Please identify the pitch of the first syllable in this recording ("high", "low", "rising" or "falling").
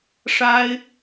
high